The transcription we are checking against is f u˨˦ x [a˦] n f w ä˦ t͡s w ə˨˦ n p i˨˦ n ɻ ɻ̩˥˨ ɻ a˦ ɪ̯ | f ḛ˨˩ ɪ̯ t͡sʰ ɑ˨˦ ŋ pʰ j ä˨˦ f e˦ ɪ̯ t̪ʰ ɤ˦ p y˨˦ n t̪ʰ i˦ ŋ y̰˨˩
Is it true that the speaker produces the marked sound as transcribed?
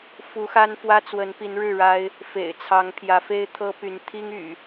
yes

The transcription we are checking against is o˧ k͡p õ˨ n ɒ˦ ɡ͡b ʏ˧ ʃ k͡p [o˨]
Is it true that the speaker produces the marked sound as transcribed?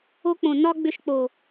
yes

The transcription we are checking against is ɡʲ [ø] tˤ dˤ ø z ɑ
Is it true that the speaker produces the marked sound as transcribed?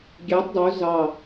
no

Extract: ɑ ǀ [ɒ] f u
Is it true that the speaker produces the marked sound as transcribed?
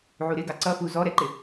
no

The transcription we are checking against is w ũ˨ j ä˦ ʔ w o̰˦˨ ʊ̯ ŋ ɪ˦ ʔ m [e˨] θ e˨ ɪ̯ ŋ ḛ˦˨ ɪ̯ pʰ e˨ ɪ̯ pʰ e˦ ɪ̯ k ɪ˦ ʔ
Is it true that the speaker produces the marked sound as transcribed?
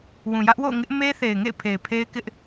no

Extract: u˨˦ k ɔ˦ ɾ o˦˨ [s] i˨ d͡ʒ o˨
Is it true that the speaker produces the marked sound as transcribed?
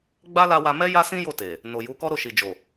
no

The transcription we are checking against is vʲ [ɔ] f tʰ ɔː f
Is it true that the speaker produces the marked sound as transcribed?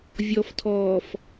yes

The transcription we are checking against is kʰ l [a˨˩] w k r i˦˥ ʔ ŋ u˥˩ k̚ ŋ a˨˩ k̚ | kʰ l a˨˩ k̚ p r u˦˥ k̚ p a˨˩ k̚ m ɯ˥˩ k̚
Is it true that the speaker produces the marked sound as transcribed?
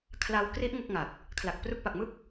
no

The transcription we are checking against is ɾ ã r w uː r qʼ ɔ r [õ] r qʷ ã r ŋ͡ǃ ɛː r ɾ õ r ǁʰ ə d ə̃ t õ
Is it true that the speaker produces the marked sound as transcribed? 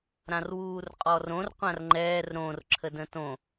yes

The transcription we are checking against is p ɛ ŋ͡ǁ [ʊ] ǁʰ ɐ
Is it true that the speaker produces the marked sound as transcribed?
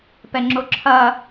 yes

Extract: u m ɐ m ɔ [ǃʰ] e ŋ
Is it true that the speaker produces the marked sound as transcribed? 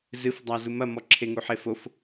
no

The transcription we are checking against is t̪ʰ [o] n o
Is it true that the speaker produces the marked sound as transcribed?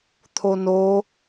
yes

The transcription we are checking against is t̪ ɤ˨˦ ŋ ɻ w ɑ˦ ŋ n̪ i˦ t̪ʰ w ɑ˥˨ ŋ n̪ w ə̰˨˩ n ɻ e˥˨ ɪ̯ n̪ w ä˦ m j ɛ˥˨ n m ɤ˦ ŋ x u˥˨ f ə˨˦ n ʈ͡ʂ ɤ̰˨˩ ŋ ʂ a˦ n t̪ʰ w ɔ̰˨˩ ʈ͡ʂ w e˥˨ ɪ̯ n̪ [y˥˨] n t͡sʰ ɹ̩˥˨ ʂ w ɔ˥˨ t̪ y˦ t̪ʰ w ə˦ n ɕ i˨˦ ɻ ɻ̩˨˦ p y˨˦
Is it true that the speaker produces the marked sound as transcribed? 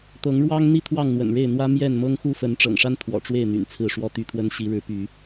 no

